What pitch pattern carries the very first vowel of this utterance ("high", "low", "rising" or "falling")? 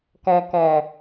low